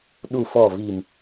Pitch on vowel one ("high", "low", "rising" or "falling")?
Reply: low